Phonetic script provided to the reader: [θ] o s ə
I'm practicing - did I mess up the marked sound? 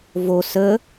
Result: yes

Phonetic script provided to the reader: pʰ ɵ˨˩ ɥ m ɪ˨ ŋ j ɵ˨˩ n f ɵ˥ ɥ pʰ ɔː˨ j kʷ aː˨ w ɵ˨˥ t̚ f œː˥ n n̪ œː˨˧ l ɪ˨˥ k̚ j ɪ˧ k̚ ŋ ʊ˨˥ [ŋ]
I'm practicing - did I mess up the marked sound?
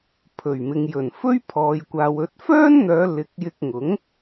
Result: no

